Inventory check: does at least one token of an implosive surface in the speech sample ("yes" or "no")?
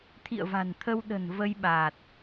yes